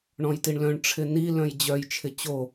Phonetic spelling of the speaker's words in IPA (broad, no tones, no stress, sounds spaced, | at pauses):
ɳ ɔ̃ j t i ɳ l œ̃ ɳ ʈ͡ʂʰ ɪ n i l œ̃ j d͡ʑ œ j t͡ʃʰ ɪ t͡ɕ o